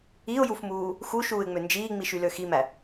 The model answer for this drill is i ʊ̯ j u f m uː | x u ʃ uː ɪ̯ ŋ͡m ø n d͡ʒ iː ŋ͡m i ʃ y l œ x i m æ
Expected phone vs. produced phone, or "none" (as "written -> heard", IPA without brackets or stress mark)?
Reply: œ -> ø